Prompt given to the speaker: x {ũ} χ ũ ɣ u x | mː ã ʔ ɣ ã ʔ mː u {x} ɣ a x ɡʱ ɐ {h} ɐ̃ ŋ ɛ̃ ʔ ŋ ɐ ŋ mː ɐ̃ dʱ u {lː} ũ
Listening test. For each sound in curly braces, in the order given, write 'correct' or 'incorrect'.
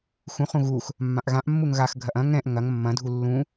correct, incorrect: ŋ, incorrect: ʔ, correct

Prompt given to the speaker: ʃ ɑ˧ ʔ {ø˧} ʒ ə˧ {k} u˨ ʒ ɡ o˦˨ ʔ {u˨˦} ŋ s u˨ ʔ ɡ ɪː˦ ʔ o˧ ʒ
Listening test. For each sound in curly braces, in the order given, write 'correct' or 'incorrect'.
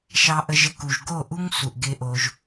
incorrect: ə˧, correct, incorrect: u˦

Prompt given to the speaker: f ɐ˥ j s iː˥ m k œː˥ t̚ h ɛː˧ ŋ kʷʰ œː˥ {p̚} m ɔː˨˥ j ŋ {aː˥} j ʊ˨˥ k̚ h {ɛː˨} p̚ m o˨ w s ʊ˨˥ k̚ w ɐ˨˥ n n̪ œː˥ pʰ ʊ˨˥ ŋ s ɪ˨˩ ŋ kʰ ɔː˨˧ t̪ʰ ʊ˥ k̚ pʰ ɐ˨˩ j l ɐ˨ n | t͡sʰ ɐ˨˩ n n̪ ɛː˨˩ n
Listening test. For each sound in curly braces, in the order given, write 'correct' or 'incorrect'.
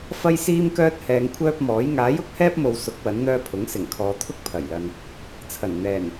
correct, incorrect: aː˨˥, incorrect: ɛː˥

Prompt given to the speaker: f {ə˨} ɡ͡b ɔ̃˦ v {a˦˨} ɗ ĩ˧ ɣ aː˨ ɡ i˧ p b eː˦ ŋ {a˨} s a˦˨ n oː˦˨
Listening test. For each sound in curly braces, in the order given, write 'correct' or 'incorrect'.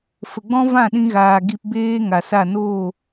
correct, incorrect: ã˦˨, correct

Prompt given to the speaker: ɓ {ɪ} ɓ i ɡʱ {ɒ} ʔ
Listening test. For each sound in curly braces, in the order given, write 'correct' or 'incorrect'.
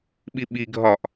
incorrect: i, correct

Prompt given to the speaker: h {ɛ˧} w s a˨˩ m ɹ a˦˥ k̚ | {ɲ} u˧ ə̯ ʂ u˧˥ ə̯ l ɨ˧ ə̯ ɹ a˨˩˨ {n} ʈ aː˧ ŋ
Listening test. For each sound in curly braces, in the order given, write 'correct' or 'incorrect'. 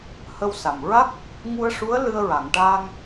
incorrect: ə˧, incorrect: ŋ, incorrect: ŋ

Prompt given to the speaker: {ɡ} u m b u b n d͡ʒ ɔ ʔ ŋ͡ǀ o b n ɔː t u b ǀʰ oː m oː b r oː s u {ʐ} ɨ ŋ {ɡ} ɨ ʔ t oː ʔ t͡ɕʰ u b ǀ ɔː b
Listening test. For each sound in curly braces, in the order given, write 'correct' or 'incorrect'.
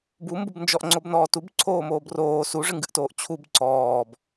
incorrect: b, correct, correct

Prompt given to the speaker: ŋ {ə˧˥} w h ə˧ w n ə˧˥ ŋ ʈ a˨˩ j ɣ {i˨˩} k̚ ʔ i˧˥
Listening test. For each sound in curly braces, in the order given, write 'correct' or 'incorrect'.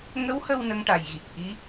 correct, correct

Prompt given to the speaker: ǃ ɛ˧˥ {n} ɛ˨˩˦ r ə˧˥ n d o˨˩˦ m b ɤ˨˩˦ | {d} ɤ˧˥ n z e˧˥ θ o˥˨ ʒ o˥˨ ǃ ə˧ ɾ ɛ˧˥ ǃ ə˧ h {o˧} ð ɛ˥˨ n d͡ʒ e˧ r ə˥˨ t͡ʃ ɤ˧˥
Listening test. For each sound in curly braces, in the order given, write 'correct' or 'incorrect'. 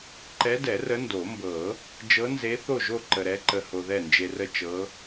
incorrect: d, incorrect: d͡ʒ, correct

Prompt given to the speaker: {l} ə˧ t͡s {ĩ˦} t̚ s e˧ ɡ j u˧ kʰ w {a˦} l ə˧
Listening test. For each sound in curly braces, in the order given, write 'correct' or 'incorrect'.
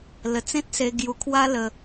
correct, incorrect: ẽ˦, correct

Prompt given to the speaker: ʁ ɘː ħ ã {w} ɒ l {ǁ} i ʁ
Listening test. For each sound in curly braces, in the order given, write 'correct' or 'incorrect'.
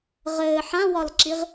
correct, correct

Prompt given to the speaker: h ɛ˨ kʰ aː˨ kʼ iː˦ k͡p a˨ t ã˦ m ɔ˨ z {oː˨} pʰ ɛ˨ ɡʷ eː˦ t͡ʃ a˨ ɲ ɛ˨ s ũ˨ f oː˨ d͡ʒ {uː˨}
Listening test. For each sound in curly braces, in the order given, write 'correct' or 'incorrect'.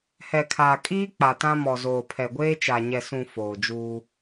correct, incorrect: uː˦

